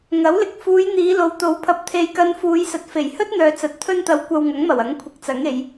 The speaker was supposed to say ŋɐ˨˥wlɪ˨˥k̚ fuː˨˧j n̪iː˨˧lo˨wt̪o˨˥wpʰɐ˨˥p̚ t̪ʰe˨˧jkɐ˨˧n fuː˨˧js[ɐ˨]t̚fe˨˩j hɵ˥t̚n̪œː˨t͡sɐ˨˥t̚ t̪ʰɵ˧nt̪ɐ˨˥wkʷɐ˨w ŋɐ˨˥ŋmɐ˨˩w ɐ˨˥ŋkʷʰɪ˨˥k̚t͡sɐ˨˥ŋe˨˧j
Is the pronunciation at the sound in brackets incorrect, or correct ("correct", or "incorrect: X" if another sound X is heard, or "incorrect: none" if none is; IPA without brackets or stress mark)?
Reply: correct